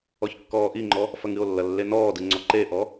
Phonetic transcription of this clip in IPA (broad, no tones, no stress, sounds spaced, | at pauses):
ɔ ç kː ɔː ʔ i ŋ͡ǃ ɔ | f ɐ ŋ ɨ o̯ lː ɐ lː e n ɔː d ɨ ŋ͡ǀ ɔ ǃ e ʔ ɔ